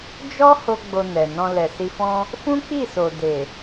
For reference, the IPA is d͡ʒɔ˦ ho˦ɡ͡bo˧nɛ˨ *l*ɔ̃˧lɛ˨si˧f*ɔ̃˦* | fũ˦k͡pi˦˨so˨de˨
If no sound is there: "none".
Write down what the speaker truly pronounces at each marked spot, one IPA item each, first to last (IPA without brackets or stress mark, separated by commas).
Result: n, ɔ̃˦